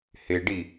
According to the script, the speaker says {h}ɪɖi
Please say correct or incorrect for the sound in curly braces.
correct